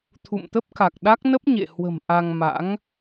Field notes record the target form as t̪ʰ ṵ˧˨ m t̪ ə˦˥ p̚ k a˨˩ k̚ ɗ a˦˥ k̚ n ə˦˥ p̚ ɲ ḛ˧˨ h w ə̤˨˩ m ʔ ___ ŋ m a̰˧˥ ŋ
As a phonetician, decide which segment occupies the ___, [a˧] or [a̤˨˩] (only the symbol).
a˧